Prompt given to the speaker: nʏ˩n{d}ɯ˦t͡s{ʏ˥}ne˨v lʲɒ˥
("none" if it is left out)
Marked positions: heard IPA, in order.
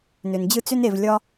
d͡ʑ, ʏ˥

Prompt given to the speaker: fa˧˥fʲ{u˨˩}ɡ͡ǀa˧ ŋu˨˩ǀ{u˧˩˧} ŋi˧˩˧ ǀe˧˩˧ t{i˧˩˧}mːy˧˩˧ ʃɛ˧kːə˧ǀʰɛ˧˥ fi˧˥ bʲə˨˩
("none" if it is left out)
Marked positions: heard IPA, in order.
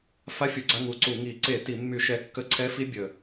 u˨˩, u˧˩˧, i˧˩˧

